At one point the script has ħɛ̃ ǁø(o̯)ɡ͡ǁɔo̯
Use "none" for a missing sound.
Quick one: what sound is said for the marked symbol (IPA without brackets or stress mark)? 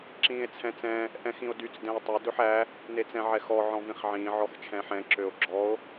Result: o̯